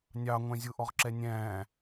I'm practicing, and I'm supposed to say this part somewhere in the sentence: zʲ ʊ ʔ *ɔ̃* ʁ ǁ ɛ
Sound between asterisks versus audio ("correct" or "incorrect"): incorrect